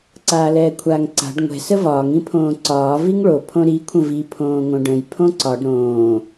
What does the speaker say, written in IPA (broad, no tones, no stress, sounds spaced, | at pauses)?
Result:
ǀ aː l ɛː kʷʰ aː ŋ ǀ a̤ ɖ ŋʷ ɛ̤ s ə v ɒː ŋ ĩ pʰ õː ǀ ɒː v i ŋ ɭ o pʰ õ ɾ i kʷʰ ə̃ v i pʰ õː ŋ õ ɖ ə̃ j pʰ õ ǀ ɒ ɖ ɾ õː